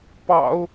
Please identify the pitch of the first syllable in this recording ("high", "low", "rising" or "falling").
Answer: low